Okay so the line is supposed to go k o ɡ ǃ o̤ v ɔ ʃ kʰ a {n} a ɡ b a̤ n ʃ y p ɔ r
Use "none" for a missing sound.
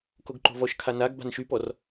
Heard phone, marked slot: n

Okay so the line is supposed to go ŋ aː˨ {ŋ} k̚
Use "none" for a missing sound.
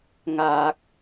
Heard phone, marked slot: none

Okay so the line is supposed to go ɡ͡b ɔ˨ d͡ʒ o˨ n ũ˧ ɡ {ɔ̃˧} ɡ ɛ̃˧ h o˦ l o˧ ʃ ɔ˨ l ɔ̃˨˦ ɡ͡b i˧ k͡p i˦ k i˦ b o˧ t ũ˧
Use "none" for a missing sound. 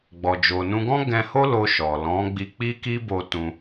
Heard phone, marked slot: ɔ̃˦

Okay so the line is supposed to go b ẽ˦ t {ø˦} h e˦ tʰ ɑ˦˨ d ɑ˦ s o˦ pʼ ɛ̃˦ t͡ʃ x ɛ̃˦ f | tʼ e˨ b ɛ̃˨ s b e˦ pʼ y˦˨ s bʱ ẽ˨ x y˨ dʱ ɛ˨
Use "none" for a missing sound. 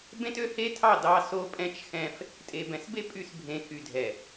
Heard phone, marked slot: ø˦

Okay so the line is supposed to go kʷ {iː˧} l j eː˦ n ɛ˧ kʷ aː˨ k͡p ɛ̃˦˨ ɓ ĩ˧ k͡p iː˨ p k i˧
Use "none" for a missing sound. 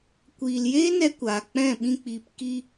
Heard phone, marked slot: iː˧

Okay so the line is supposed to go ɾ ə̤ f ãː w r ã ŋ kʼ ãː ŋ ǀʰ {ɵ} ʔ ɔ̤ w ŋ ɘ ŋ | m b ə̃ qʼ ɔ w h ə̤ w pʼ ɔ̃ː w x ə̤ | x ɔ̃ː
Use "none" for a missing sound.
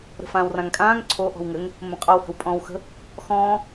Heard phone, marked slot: o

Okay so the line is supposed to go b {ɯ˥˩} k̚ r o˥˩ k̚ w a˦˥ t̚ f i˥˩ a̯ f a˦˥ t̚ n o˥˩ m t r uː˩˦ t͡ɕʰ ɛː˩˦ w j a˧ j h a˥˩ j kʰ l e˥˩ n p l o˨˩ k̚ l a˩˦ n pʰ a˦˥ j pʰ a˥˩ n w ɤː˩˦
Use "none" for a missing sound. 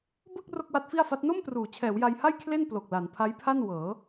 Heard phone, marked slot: ɯ˥˩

